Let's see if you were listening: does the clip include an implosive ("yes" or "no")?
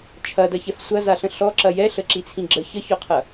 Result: no